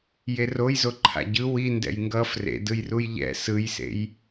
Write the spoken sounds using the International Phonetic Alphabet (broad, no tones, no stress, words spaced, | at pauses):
jerojzo ǃʰa̰ɟɯ wi ndɛ̰jŋɡʌ frḛdɯjruj ʎɛ̰ sɯjsḛj